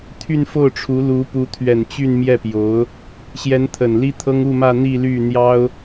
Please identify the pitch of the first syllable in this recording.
falling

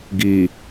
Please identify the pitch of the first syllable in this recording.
low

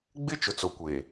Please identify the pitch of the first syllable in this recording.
high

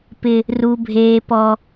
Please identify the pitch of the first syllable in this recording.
high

